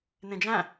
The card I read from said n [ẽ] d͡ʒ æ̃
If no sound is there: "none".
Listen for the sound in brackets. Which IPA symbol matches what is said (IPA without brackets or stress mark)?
ẽ